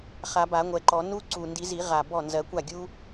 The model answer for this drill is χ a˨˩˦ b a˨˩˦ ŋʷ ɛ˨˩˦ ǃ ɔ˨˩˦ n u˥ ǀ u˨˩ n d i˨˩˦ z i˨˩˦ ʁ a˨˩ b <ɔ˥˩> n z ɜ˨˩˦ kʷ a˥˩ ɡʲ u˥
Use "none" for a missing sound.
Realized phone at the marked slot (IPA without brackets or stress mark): ɔ˥˩